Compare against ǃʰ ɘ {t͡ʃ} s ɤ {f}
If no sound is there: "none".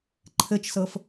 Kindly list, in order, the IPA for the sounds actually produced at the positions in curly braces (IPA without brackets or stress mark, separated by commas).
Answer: t͡ʃ, f